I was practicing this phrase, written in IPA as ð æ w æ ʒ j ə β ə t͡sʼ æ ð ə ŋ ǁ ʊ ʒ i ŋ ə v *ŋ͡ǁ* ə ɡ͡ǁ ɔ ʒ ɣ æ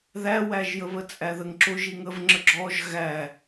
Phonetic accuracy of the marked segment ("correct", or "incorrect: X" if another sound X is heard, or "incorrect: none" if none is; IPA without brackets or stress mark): correct